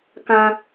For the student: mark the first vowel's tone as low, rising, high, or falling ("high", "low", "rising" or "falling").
high